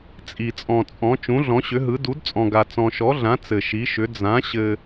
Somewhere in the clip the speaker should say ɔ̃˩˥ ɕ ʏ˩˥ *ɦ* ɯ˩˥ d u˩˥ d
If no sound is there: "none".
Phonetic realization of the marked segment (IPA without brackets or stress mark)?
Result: ɦ